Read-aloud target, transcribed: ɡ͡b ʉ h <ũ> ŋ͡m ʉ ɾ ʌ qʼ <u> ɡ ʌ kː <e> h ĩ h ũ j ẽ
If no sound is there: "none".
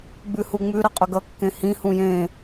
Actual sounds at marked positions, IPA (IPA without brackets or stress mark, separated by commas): u, ʏ, ẽ